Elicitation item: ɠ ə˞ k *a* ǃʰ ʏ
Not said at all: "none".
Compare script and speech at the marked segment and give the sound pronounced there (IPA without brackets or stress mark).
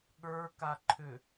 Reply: a